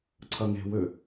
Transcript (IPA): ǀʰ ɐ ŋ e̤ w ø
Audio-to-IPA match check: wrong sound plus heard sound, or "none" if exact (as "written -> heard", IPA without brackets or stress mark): none